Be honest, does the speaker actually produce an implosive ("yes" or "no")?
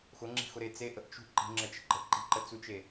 no